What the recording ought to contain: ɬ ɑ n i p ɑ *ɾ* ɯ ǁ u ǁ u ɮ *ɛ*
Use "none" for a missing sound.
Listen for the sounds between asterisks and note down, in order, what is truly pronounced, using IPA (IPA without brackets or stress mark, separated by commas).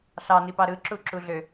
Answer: ɾ, ø